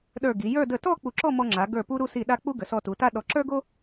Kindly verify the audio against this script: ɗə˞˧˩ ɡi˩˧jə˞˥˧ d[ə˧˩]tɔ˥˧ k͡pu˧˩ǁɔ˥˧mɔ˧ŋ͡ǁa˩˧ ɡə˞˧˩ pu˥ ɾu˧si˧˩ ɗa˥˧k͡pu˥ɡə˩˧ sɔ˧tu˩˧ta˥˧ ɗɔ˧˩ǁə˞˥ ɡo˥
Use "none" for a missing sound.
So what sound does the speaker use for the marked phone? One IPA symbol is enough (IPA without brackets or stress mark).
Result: ə˧˩